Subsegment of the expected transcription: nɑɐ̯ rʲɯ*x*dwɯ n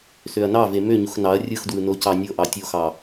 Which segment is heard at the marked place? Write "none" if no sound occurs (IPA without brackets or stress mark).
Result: x